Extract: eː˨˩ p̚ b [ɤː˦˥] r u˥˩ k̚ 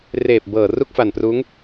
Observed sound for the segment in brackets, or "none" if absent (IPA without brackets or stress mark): ɤː˨˩